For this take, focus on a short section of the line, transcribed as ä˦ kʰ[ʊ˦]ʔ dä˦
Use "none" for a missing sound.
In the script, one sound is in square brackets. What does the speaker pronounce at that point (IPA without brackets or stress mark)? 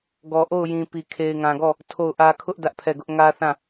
ʊ˦